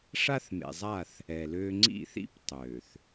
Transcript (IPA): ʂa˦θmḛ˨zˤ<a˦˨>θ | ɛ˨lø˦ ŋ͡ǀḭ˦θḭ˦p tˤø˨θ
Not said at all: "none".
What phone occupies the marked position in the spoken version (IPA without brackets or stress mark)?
a˦˨